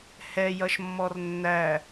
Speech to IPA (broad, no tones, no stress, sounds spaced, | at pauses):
h ɛ j ʌ ʃ mː ɔ r nː æ